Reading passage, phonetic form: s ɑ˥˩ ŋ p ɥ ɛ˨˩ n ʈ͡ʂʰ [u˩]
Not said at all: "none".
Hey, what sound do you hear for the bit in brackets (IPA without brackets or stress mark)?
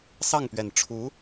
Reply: u˧˥